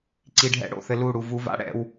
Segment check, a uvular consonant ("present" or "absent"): absent